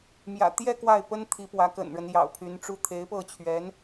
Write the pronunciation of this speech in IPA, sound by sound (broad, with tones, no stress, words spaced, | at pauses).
mjä̰˨˩ t̪jɛ˥˧ kwa˥˩ɪ̯pə˥nt̪ʰi˧˥pwä˧˥ kə̰˨˩nɻə˦n jɑ̰˨˩ʊ̯pʰy˧˥nʈ͡ʂu˥˩ t̪ʰe˧˥ɪ̯pɤ˥˩t͡ɕʰɥɛ˧˥n